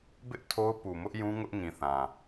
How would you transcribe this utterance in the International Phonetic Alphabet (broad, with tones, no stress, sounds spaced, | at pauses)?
b ɪ˦ ʔ tʰ o˦ ʊ̯ p u˨ m ʊ˦ ʔ j ũ˦ ŋ ʊ˦ ʔ ŋ ĩ˨ θ ã˨